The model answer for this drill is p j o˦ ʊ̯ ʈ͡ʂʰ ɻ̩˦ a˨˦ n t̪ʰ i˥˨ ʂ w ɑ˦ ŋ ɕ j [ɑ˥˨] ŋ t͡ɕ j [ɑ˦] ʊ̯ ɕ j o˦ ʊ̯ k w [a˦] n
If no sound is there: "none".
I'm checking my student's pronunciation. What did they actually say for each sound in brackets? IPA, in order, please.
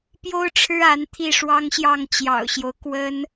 ɑ˥˨, ɑ̰˨˩, ə˦

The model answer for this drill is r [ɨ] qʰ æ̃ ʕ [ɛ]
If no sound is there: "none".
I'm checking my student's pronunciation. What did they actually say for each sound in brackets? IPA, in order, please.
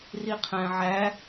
i, æ

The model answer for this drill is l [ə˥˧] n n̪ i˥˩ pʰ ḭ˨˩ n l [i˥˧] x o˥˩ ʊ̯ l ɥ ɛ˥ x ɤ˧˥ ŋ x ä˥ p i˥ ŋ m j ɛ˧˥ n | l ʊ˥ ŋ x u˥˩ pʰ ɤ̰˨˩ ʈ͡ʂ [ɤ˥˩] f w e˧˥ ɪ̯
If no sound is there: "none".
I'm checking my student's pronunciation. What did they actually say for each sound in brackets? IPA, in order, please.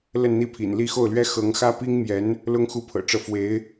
ə˥˧, i˥˧, ɤ˥˩

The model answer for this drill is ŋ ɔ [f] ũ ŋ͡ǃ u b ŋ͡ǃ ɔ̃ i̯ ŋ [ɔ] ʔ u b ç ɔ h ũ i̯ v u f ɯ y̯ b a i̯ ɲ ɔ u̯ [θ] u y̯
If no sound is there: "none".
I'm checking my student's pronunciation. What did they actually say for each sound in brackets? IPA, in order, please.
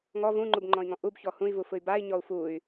v, ɔ̃, f

